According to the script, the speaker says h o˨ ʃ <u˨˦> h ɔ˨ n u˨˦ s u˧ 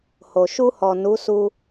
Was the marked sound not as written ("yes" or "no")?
yes